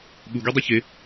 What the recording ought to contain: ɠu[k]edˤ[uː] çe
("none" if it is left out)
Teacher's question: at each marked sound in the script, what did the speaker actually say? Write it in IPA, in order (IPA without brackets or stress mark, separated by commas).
ɡ, u